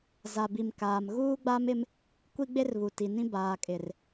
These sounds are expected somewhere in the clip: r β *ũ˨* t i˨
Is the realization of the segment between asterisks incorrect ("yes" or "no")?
yes